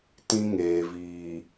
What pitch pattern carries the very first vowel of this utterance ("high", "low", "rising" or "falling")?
high